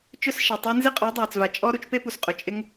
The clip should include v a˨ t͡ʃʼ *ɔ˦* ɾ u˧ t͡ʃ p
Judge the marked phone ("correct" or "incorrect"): correct